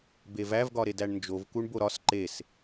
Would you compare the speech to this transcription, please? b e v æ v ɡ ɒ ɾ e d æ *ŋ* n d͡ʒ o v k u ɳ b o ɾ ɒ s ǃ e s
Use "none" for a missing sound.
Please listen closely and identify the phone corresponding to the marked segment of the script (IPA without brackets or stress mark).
ɳ